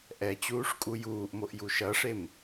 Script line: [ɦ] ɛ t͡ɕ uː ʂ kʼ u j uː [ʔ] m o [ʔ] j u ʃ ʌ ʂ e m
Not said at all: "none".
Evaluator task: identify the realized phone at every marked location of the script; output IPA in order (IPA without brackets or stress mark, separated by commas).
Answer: ʔ, ʔ, ʔ